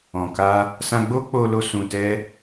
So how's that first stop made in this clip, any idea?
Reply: plain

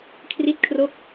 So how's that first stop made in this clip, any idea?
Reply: aspirated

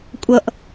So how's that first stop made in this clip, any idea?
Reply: ejective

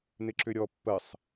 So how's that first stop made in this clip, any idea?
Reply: click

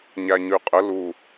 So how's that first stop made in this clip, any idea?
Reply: ejective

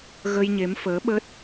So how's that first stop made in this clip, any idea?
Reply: implosive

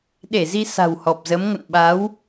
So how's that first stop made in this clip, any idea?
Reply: implosive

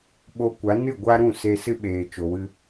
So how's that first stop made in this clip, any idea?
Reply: implosive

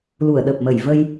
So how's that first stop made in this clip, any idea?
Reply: implosive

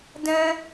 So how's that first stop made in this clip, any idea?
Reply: plain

